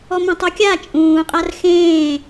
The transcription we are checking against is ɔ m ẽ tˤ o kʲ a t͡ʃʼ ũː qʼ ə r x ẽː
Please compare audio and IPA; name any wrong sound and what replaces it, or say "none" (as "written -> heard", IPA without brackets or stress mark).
ə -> a